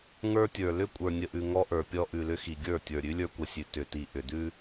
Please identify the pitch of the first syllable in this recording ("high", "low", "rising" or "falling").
high